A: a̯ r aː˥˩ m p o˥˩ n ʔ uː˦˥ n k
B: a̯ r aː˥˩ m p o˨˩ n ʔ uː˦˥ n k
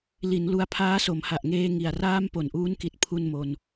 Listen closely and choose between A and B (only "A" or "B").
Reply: B